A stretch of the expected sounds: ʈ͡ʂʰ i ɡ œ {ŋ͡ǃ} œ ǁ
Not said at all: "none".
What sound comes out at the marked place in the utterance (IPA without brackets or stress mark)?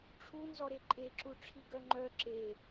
ŋ͡ǃ